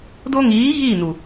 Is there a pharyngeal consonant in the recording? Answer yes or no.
no